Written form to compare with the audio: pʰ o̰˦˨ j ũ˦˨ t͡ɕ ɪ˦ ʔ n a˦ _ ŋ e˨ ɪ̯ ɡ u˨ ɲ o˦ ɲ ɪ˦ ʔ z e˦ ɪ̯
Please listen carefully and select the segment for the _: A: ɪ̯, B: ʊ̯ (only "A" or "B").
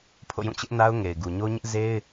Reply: B